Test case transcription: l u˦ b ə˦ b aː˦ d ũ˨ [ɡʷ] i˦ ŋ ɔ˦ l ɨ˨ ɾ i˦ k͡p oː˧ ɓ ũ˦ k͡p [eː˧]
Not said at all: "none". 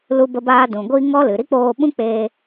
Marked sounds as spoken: ɡʷ, eː˧

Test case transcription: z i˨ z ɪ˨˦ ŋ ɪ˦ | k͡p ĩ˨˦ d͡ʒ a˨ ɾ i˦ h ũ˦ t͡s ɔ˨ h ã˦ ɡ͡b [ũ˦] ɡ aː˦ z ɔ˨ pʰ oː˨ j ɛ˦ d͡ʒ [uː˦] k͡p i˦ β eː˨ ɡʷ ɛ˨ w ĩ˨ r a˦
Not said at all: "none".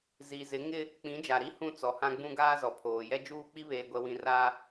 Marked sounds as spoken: ũ˦, uː˦

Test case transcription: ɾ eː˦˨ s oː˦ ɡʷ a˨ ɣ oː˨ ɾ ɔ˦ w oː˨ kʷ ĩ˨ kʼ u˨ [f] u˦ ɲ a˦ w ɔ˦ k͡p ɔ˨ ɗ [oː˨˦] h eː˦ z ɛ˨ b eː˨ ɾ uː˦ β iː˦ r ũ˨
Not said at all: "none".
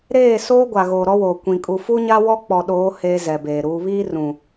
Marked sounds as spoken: f, oː˨˦

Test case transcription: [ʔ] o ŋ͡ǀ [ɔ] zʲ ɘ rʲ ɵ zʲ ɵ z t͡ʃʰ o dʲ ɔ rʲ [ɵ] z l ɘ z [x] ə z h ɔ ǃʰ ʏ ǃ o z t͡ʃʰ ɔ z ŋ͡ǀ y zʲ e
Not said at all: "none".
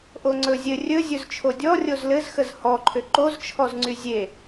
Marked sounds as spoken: ʔ, ɵ, o, x

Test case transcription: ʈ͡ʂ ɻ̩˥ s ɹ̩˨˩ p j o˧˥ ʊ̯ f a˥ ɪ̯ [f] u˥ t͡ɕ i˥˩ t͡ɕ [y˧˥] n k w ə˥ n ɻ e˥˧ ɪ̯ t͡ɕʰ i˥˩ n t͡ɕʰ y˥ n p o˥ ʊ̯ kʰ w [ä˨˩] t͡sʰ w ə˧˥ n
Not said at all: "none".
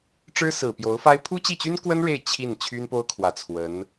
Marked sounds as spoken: pʰ, y˥, ä˨˩

